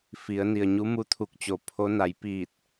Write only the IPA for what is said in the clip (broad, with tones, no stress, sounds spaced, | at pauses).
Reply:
f i˩˧ ə̯ n i˩ ə̯ ɲ u˧˥ m u˧˥ t̪ʰ u˧˩ k̚ t͡ɕ o˩˧ pʰ o˧˥ n a˩˧ j p iː˧˩ t̚